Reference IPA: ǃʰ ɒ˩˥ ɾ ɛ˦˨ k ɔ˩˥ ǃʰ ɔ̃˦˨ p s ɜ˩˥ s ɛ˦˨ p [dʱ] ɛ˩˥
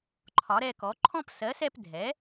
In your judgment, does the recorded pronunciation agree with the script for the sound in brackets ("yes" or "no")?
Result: yes